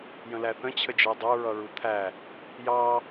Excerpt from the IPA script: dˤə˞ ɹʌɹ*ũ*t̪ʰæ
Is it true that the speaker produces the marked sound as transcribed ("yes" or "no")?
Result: no